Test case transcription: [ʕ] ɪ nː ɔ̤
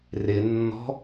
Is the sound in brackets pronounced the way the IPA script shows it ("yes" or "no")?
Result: no